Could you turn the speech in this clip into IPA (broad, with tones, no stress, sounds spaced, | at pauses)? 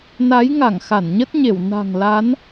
n a˨˦ j ŋ a˧˩ ŋ x a˧˩ n ɲ ə˦˥ t̚ ɲ e˧˩ w n a̤˨˩ ŋ l a˨˦ n